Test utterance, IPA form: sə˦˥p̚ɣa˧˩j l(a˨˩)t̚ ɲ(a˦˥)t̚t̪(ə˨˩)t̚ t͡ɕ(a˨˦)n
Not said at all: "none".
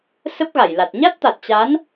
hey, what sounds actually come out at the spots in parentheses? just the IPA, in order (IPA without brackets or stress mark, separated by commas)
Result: a˨˩, a˦˥, a˨˩, a˨˦